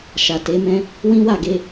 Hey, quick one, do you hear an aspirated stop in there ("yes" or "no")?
no